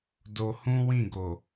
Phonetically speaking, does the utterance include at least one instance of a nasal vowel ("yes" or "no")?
yes